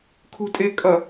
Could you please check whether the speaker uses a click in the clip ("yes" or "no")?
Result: no